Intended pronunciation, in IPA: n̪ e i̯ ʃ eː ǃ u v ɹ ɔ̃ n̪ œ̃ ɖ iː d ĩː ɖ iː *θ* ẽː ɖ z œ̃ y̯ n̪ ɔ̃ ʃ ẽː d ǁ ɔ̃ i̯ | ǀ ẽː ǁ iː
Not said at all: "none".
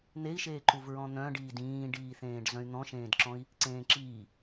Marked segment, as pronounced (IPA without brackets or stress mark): θ